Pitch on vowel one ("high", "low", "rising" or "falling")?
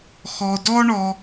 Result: low